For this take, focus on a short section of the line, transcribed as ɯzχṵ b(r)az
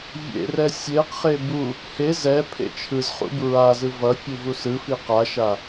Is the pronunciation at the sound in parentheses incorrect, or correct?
incorrect